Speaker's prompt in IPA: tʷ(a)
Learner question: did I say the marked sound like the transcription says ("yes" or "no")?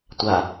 yes